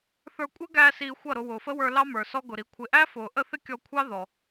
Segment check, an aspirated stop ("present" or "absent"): present